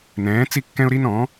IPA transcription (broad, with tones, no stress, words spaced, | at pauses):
nɛ̃ː˨˥t͡si˦ kːɛ̃˦ʊ̯ɾi˦nɔ̃˨˥